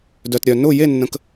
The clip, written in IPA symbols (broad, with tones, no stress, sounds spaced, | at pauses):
d œ˧ t ɾʲ œ˧ n ʊ˥˧ j e˥˧ nː ə̃˧ k